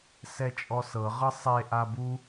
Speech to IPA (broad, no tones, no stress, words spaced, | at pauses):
sɛt͡ʃʼɔsɤ ʁɤsˤe ʔabu